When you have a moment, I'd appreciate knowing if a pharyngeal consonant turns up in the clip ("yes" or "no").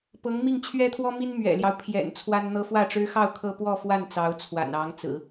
no